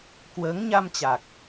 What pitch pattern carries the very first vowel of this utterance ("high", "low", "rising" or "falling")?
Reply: rising